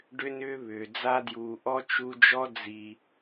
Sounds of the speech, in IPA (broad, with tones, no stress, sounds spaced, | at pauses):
ɖ ʏ˥ n ʏː˥ β ʏː˩ d͡z a˥ d j uː˨ ʔ ɔ˥ t͡ʃ u˦ d͡ʒ ɔ˥ d͡z i˨